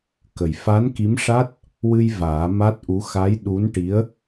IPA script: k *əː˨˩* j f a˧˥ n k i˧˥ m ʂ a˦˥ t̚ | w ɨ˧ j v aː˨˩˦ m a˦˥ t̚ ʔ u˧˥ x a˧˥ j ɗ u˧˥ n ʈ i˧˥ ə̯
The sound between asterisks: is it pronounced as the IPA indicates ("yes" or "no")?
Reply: no